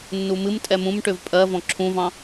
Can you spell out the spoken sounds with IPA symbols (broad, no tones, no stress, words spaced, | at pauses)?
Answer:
nːumɨmtʼɛ mũmʈʏv pʼɜ vɔ̃ǁʰũvɑ̃